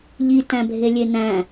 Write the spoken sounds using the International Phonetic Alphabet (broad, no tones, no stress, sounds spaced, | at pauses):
ʎ i t æ̃ bʱ e lʲ e n æ̃